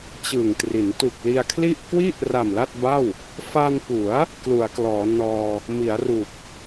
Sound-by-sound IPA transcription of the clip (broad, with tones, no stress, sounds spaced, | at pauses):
t͡ɕ ɯ˨˩ ŋ t r i˩˦ n t u˨˩ k̚ l i˧ a̯ kʰ l i˥˩ ʔ k w i˥˩ ʔ r a˨˩ m l a˥˩ t̚ b a˥˩ w | f a˧ n p u˩˦ a̯ | k l u˩˦ a̯ k l ɔː˩˦ n ɔː˧ | m i˩˦ a̯ r u˨˩ k̚